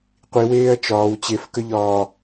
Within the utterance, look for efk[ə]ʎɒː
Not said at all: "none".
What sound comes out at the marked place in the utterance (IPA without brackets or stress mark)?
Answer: ə